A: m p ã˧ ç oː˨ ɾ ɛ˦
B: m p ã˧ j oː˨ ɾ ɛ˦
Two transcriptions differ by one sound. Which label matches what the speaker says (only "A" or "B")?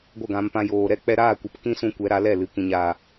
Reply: B